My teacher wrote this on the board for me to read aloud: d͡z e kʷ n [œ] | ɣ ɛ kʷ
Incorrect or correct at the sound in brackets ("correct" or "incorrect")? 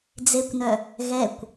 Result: correct